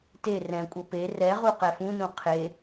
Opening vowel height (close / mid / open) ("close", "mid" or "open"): mid